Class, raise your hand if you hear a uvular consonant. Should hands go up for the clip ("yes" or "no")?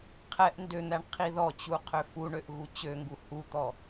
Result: yes